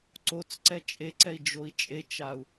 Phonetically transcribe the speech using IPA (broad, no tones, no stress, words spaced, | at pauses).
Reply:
ǀot͡sǀɛ t͡ʃʼeǀɛi̯ d͡ʒoi̯t͡ʃʼet͡ʃau̯